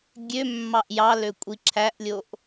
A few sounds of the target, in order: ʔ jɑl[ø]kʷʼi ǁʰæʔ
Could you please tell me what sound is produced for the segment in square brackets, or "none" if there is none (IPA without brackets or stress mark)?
ø